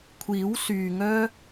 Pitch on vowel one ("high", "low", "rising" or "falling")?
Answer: rising